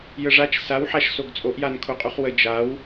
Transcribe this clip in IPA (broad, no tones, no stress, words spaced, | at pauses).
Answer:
jəʐat͡ʃ sawħaʃ soɡt͡sʼoʔjan kʰoqʼuχwə d͡ʒaw